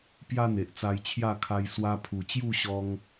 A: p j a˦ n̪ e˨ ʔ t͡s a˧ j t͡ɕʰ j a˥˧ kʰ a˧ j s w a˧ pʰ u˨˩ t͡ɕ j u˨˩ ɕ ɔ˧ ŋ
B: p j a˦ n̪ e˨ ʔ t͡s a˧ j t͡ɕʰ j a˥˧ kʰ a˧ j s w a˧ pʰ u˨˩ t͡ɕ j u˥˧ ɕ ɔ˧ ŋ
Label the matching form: B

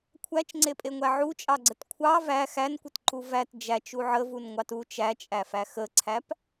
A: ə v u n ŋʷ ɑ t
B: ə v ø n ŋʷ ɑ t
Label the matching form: A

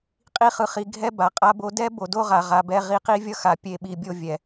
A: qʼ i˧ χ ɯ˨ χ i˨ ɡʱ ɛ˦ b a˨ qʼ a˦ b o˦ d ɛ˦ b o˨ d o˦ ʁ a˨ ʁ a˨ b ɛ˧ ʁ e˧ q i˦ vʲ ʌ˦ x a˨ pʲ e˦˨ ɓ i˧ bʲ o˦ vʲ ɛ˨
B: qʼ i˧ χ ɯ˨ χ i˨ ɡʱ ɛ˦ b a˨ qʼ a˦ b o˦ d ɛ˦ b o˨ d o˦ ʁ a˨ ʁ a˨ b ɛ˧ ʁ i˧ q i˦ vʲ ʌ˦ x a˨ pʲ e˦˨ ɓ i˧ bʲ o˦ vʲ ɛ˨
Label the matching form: B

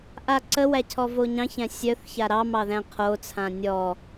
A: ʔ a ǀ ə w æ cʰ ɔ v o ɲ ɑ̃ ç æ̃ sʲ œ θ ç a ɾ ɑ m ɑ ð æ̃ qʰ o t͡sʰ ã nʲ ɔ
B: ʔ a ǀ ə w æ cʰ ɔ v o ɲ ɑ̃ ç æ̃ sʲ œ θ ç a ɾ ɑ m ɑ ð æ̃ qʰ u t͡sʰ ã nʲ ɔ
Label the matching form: A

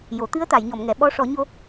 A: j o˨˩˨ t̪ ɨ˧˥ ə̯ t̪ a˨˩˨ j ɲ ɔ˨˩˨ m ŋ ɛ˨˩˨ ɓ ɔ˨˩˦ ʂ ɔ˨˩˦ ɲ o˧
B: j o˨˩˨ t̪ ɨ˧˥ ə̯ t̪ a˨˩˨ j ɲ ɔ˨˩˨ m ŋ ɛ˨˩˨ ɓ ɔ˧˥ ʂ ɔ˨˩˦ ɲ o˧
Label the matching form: B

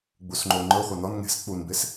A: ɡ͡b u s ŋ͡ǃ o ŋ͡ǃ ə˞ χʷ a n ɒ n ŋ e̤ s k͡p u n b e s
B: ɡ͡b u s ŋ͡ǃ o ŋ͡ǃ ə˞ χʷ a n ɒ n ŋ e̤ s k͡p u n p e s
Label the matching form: A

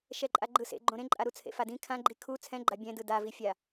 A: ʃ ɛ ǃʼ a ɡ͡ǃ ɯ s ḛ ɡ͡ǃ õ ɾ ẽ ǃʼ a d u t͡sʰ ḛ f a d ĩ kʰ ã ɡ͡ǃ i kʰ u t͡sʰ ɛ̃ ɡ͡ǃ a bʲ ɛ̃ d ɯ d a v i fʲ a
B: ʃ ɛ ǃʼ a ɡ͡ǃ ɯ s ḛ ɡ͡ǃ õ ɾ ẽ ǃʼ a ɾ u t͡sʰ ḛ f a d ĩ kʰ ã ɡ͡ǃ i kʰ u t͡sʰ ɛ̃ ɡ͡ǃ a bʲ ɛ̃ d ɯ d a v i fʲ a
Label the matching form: B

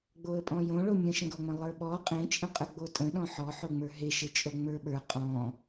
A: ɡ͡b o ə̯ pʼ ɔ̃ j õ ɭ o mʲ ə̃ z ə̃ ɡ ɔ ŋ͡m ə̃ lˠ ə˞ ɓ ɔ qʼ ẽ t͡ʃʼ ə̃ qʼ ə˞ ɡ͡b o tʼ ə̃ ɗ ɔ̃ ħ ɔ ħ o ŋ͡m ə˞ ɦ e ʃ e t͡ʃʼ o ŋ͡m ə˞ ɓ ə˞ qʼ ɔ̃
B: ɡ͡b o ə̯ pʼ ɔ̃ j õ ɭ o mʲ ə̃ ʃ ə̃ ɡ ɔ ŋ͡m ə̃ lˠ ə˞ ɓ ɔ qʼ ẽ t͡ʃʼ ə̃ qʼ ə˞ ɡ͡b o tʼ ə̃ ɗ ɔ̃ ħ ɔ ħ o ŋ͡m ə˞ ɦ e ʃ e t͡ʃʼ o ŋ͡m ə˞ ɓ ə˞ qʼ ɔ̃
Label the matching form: B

